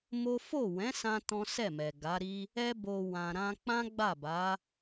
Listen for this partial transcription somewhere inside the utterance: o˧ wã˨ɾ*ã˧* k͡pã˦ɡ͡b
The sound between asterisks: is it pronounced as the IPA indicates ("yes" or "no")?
yes